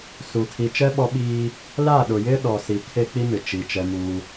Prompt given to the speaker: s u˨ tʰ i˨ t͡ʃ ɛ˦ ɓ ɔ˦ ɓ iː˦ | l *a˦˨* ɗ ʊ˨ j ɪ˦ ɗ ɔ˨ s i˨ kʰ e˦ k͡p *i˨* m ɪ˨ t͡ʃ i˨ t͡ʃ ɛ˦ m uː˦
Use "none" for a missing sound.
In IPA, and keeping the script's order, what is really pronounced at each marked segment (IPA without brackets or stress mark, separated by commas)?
a˦˨, i˦